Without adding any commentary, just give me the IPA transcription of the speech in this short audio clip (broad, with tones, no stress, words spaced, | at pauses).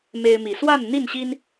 me˦ɪ̯mi˨˦ swa˥˨nn̪i˥˨nɕi˦n